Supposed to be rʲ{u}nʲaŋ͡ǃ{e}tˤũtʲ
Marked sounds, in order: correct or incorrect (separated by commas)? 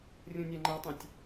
incorrect, incorrect